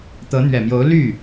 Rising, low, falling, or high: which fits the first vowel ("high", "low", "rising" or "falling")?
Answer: rising